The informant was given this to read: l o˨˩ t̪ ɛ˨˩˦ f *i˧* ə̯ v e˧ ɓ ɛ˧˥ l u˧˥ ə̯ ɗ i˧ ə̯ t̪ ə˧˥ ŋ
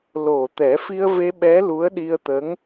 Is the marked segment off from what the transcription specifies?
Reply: no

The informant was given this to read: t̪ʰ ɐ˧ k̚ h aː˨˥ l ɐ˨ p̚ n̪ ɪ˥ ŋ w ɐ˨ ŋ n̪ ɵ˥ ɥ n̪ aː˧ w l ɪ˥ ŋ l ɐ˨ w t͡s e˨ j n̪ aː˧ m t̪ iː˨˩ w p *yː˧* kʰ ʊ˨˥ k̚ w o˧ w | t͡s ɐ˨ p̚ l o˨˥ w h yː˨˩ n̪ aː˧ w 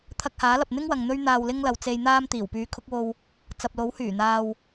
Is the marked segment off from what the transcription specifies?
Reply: yes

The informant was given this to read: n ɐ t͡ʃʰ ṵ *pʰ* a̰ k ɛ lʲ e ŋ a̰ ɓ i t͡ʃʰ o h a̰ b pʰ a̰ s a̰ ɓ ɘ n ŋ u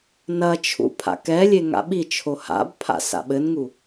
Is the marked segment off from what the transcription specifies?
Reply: no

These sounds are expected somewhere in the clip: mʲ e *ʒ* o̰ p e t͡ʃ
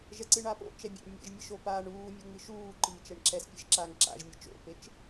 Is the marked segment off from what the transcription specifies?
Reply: yes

